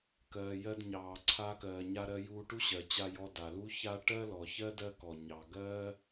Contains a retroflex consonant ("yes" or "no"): yes